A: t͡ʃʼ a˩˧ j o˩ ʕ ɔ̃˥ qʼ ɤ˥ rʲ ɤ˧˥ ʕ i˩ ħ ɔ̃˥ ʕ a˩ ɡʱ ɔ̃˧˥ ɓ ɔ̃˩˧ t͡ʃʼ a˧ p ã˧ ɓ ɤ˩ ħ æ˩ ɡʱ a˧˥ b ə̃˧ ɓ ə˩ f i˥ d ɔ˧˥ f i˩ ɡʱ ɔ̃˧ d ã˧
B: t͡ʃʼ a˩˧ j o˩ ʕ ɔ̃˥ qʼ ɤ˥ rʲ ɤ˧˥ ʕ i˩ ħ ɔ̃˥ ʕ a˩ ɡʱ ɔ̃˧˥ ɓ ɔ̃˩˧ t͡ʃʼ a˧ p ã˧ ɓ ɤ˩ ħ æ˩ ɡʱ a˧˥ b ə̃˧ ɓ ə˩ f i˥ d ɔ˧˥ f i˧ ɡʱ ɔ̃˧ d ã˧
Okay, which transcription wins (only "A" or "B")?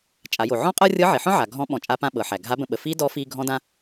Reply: B